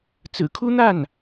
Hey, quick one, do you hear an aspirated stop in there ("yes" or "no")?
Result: yes